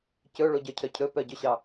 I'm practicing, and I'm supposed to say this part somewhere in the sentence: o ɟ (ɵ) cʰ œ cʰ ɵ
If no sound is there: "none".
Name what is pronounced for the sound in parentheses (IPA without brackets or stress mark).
œ